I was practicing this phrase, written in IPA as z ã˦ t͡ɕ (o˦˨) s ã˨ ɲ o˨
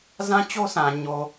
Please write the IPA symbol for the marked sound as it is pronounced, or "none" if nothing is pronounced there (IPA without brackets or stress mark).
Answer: o˦